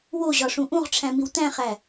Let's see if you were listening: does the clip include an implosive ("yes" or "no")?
no